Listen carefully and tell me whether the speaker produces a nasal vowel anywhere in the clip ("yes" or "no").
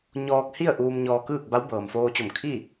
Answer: no